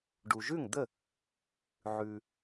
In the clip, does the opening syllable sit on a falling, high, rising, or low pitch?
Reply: low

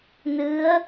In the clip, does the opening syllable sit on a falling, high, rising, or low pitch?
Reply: rising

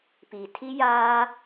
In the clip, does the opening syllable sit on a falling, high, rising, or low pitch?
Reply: low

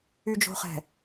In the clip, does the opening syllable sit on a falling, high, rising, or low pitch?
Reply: low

